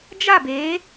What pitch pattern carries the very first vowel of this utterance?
falling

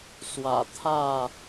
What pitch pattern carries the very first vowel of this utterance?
low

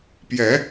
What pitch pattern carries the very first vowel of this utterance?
rising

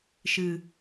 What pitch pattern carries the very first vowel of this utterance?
low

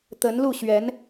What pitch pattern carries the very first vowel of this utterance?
rising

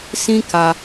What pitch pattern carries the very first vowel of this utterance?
high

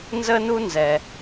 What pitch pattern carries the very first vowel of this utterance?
high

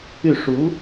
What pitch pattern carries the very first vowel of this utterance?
falling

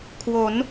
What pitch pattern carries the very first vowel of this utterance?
rising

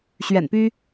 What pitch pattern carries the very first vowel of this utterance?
low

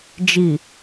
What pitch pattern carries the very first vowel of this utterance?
low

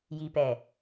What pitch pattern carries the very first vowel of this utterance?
low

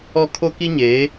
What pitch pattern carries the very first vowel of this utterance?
high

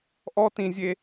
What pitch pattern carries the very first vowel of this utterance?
high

